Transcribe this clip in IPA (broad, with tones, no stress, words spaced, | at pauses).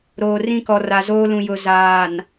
ɾoː˨ rĩ˦kɔ˨ ra˨zoː˦lũ˨jʊ˨ zaː˨n